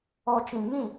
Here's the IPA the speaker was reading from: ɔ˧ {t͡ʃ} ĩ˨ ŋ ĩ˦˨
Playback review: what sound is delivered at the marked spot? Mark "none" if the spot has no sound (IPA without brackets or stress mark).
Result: t͡ʃ